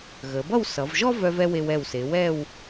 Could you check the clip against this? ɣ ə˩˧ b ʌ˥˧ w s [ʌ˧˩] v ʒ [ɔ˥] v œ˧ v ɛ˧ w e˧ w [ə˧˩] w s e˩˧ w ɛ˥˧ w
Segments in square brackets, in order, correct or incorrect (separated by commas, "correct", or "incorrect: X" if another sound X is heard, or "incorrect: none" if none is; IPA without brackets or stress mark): incorrect: ʌ˩˧, correct, incorrect: ɛ˧˩